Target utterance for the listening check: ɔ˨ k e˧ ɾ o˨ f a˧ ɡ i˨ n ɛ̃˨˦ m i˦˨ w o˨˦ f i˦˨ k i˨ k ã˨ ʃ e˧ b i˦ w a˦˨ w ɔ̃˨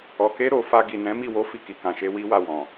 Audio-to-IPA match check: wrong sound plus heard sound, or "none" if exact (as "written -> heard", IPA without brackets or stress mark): b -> w